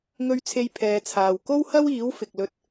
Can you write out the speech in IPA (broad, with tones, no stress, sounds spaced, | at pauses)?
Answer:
ŋ ɵ˨ ɥ t͡sʰ e˨ j pʰ ɛː˨˧ t͡sʰ aː˨ w k o˥ w h ɐ˥ w iː˨˥ w f ɪ˨ k̚ l ɵ˧ t̚